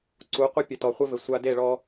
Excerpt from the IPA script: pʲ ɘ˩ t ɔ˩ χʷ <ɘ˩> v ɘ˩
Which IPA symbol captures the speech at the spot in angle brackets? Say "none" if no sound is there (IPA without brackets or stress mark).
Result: ɘ˧